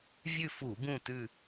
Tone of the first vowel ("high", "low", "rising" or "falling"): falling